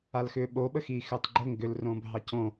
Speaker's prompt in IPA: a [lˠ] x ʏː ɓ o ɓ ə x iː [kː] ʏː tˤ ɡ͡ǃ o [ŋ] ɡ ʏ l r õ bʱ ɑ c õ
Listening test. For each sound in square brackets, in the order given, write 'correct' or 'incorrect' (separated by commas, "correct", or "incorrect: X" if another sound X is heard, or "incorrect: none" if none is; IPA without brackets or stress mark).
incorrect: l, incorrect: x, correct